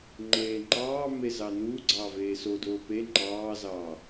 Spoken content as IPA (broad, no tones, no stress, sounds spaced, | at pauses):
ŋ͡ǃ eː ŋ͡ǃ ɑː m e z ɑ n uː ɡ͡ǀ ɑ v eː s o d oː p e ŋ͡ǃ ɑː z ɑː